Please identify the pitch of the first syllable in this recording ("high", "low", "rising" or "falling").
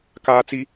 high